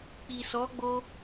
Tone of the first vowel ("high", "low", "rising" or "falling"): low